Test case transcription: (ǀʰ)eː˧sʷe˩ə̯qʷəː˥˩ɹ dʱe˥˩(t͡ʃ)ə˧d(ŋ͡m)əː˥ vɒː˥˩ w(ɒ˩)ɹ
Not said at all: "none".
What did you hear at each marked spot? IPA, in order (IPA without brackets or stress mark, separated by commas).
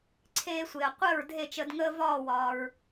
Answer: ǀʰ, t͡ʃ, ŋ, ɒː˩